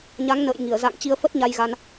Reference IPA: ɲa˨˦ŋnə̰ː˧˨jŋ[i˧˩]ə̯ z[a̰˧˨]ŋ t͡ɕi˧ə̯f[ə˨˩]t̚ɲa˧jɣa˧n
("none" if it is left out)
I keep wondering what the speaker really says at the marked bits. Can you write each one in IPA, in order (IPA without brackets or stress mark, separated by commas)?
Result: i˧˩, a̰˧˨, ə˦˥